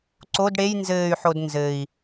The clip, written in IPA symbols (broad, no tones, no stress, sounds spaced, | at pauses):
ǀ o d ɽ e j n z ɘː y̯ ħ o d n z ɘ i̯